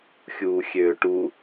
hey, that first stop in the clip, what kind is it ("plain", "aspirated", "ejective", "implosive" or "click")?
plain